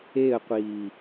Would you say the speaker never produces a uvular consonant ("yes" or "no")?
no